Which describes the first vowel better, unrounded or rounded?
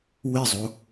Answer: unrounded